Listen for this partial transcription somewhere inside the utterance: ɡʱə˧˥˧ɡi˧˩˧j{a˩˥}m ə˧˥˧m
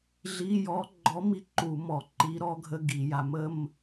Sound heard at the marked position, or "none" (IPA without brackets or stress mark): a˩˥